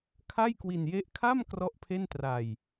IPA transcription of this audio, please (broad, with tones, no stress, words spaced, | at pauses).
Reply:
kʰa˥˩jkwi˧nje˦˥ʔ kʰa˥˩m krɔ˥˩ʔpʰe˥˩ntra˧j